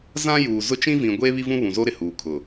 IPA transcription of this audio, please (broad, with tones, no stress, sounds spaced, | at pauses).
z ã˦ j uː˨ z ʊ˦ t͡ʃ ĩ˦ v ĩ˨ ɡʷ eː˦ β i˦ v ũ˦ β ũ˨ z o˦ ɾ ɪ˨ h uː˨ kʰ ʊ˨